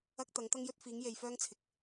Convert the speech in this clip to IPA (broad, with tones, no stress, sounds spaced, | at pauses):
ɐ˥ k̚ t̪ ɐ˨˥ ŋ t̪ ɐ˥ ŋ j ɵ˥ t̚ f iː˨˥ ŋ j e˨˧ j f œː˥ ŋ t͡sʰ ɪ˨ k̚